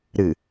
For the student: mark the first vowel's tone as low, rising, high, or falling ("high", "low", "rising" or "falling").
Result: low